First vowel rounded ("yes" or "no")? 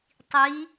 no